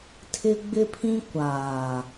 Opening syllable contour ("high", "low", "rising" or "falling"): high